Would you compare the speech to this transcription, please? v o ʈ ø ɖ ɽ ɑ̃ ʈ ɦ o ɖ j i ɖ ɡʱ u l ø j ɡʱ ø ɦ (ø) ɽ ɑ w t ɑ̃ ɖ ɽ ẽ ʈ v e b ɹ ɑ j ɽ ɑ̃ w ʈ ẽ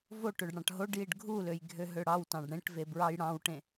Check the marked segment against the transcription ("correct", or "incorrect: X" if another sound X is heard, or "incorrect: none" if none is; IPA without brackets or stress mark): correct